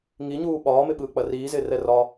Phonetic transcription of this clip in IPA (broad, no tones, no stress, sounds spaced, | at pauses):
ŋ i ɲ uː ɓ ɒː m ɪ ɓ ɯː k͡p ɐ r iː z ɪː r ɛ r ɒ